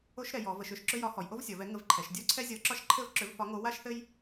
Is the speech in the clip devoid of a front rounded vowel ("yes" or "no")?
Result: no